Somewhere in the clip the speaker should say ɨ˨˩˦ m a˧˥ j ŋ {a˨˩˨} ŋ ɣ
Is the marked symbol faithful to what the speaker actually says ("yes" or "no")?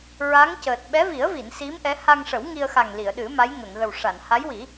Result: no